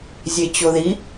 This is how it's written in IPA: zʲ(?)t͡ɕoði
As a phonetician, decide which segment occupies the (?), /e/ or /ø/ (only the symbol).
e